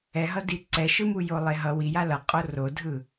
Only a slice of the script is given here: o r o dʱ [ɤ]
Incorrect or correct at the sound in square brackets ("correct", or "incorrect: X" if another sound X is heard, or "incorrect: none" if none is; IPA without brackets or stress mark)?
incorrect: ɯ